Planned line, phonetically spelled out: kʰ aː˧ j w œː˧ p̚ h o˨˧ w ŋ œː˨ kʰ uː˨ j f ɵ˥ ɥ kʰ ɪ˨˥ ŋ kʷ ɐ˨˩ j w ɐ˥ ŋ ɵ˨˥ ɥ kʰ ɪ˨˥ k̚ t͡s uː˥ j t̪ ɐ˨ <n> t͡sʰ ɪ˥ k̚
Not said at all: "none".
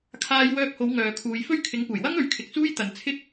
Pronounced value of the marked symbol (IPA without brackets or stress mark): n